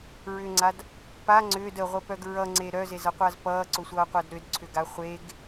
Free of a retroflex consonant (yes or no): yes